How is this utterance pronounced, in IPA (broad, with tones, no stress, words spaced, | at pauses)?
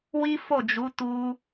wi˦fo˦˨d͡ʒu˨˦ tu˦